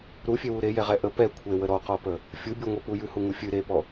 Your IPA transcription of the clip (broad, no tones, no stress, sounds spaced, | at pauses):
ɾ u fʲ e w u ɾ e j ɛ ʁ ɛ ʔ ə p ɛ kʷʰ e w ə ɾ ɔ q ɔ p ə | fʲ u bʲ u ŋʷ ɛ p u j ʉ h u ŋ u fʲ ɨ ɾ e p ɔ